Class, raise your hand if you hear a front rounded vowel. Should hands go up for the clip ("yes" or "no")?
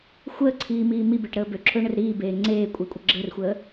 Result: yes